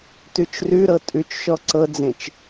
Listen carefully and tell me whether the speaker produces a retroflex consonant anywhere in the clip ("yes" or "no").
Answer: no